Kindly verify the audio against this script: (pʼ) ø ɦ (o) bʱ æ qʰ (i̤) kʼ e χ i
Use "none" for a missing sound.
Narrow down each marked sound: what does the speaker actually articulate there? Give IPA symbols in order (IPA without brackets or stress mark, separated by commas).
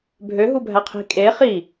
bʱ, u, i̤